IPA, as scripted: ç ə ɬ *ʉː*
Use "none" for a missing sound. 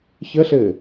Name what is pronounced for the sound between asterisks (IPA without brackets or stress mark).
ɘː